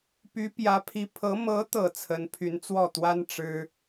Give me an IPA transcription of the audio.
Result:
py˧˥pjä˧˥pʰi˧˥pʰɤ˧˥ mɤ˧˥t̪ɤ˨˩ t͡sʰə˧˥npʰy˧˥nt͡swɔ˥˩t̪wa˥n ʈ͡ʂɻ̩˥

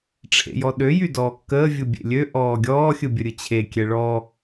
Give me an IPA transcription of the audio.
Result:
ʈ͡ʂʰḛjɔɗø jydɔːkːəː vʲɯbʲḛlʲø ʔɔːɡʲɔː xʲɯbʲəɾʲɯt͡ɕʰe kʲɛɭɔ

